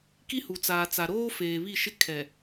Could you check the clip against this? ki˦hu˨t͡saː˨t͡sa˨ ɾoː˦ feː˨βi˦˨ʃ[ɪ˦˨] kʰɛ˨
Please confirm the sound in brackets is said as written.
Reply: no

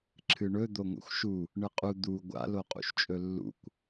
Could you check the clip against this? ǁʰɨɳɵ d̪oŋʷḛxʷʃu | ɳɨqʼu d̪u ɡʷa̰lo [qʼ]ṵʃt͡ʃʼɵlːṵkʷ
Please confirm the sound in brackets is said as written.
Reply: yes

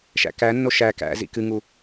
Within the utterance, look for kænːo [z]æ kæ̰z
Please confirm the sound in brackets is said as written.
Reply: no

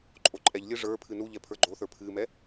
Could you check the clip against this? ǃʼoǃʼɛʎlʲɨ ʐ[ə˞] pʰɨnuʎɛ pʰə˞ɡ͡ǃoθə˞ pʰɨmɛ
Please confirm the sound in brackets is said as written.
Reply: yes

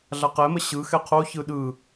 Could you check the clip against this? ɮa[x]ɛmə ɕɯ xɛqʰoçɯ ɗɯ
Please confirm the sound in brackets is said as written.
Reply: no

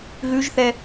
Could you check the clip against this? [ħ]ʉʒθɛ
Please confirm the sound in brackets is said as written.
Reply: no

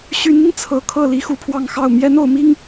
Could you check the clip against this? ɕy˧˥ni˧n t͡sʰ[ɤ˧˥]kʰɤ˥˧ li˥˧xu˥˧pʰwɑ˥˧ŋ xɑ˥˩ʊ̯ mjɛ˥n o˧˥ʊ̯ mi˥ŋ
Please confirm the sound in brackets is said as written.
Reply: yes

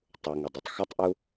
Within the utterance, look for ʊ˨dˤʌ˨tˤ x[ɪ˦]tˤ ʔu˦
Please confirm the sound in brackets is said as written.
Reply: yes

